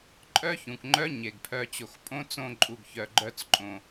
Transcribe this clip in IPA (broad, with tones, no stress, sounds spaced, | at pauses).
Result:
ǃʼ œ˦ ç ũ˨ k ŋ͡ǃ œ˦ ɲ e˨ ɡ pʰ œ˧ t͡ɕ o˨ x pʼ õ˦ t͡s õ˦˨ ǃʼ u˨ ɡ ç œ˨ ɡ͡ǃ œ˧ t͡s ǃʼ õ˨